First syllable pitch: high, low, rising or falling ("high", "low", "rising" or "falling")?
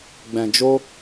low